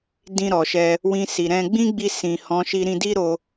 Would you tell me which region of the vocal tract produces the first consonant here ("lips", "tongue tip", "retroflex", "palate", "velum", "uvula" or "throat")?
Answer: tongue tip